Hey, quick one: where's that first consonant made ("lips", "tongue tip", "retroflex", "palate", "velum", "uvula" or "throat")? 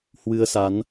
throat